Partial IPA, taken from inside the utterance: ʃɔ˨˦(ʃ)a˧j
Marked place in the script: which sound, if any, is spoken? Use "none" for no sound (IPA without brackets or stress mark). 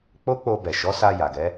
s